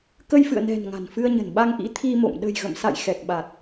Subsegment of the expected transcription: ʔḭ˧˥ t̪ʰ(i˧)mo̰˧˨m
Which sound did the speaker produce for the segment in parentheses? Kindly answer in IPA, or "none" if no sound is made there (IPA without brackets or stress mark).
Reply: i˧